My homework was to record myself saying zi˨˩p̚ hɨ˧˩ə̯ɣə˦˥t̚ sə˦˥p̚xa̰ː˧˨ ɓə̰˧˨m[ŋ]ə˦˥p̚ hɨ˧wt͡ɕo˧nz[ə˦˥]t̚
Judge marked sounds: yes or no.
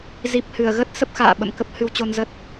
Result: no, yes

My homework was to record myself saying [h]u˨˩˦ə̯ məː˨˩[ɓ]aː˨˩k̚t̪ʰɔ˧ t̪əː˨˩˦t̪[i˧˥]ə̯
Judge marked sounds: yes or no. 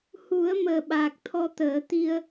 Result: yes, yes, no

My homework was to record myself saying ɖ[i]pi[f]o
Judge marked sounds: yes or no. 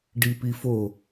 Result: yes, yes

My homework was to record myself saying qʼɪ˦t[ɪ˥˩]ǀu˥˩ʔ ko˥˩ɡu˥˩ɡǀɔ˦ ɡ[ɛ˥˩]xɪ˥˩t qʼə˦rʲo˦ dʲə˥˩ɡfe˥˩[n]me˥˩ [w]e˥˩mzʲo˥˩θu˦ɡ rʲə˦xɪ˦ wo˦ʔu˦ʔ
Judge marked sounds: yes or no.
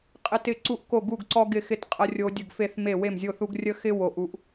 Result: yes, no, no, yes

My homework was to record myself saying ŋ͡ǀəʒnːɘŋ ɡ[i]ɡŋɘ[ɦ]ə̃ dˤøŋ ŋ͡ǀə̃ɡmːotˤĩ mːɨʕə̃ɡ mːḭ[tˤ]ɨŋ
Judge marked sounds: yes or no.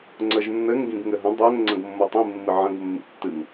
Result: no, yes, no

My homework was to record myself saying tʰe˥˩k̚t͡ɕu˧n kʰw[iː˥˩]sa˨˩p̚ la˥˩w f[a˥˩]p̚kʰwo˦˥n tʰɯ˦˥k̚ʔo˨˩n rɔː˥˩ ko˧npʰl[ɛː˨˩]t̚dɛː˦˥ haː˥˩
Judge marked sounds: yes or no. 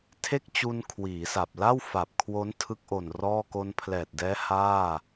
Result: no, no, yes

